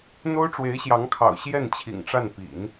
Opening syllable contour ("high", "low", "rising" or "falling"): high